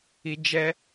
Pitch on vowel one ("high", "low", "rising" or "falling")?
low